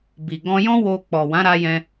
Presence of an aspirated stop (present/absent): absent